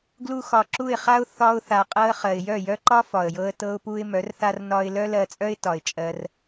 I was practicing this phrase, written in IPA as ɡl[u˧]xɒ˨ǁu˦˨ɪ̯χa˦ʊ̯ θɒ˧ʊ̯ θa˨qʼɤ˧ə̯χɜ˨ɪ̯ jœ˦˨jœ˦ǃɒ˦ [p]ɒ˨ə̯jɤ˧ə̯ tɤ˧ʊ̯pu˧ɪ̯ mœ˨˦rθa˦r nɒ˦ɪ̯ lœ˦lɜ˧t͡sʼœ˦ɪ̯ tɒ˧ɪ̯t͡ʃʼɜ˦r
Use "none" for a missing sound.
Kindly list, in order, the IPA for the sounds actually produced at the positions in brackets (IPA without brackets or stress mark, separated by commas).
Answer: u˧, f